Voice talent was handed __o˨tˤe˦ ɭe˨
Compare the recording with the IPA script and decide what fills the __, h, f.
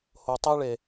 h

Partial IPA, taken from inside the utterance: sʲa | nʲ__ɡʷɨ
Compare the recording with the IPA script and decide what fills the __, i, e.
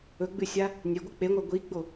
e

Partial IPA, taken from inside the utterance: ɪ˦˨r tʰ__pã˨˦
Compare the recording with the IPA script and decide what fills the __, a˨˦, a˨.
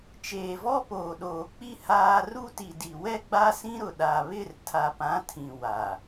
a˨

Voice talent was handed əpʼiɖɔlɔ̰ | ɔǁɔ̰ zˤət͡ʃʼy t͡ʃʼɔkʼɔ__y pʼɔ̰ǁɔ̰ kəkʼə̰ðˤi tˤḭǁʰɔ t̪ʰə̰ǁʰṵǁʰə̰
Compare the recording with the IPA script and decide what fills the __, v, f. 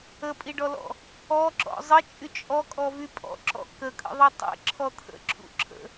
v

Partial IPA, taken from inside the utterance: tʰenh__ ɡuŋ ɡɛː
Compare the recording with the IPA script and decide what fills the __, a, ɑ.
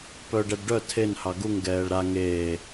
ɑ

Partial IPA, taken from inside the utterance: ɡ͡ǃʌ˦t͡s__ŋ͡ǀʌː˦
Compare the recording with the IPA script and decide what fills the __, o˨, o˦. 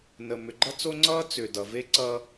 o˦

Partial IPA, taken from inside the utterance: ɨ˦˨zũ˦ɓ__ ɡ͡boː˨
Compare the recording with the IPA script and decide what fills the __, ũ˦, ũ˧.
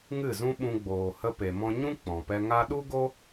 ũ˧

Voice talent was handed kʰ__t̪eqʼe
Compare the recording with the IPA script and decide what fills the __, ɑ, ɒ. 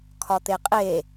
ɒ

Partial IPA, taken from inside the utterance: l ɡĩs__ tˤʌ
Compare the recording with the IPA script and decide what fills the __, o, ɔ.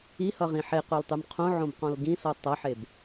ɔ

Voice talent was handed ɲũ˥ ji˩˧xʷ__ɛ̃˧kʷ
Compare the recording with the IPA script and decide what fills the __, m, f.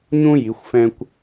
f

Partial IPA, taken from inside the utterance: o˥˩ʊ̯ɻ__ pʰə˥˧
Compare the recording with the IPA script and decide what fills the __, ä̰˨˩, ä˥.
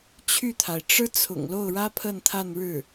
ä˥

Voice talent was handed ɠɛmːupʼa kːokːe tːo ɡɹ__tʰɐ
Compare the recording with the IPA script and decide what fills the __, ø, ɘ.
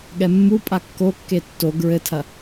ɘ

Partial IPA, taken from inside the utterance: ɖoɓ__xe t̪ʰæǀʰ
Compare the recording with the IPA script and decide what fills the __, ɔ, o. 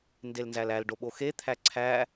o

